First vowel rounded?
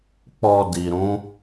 yes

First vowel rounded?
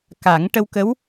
no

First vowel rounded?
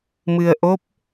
no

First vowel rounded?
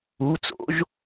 yes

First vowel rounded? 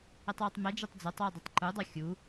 no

